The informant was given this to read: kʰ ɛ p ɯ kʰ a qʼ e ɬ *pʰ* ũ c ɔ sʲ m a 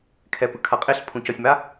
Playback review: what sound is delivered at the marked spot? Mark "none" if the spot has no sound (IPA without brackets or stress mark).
pʰ